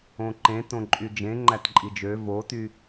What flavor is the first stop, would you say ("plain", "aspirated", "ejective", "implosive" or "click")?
click